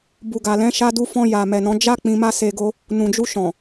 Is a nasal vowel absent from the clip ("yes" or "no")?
no